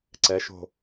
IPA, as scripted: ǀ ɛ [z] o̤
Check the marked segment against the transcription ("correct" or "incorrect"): incorrect